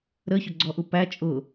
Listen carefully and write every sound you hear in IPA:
ɾəçʊɡ͡ǀɔʔu pæ t͡ʃʼʊ

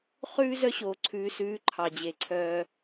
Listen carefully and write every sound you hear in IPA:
χʉː˦ zœ˦ɕoː˨ ǀʰʉː˨sʉː˨˦ ǃʰɑ˨d͡ʑe˨ǀʰœː˦

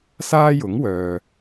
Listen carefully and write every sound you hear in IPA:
saː˥jʊ˨˥ŋwœː˨

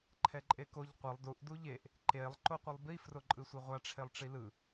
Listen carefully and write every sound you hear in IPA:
ǃʰɛǃʼekoʎ qʷʌlˠ duʔ duʎeʔ | ǃelˠ ǃoqʷɯlˠbi froǃʼɯsʷɛʁʷa ʈ͡ʂʰelˠʈ͡ʂilɯ

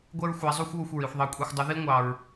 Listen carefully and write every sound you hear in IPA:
ɡʷɛ˥ɹxʷæ˧˥zˤu˥xʷ wu˧xʷɹi˩˧xʷðˤɑ˧˥kʷʼi˧xʷ dˤə˧˥ði˥ŋʷɑ˧ɹ

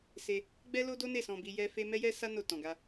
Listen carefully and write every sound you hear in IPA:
se˧ | ɡ͡bɛ˦lo˦do˦ne˦˨ sɔ̃˧bi˧jɛ˦ fe˦ mɛ˦jɛ˦sa˦ no˦˨tɔ̃˨ɡa˧

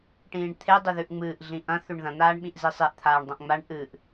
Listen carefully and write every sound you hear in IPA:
ʈĩːɳt̪ʰe dˤɵðʉʔŋ͡mɨːʔ ɮĩʔɐ̃ θʉɳðɐ̃ n̪aːɳɓĩʔzisˤeʔ t̪ʰaːɳdˤɐ̃ʔŋ͡maɳ ʔɨʔ

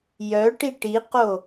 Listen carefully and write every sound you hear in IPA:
jœʈi ʈiqo

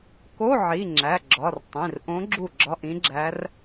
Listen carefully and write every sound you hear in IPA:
ko˧˥˧ʕi˩˧˩ ŋ͡ǁæ˩˧˩ɡ͡ǁɒ˩˧˩rtˤĩ˩˧˩rʔõ˧˥ ɡ͡ǁu˥˩ɡ͡ǁɒ˧˥˧ʔĩ˧˥ɡ͡ǁæ˧˥r

